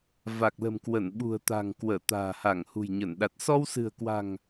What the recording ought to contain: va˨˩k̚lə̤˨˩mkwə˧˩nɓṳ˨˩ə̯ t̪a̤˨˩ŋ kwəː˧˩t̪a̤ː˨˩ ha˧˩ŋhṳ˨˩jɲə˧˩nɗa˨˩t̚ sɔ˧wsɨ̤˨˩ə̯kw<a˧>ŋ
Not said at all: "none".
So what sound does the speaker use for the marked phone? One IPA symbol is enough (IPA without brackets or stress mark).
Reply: a̤˨˩